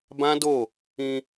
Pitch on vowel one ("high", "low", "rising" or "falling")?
high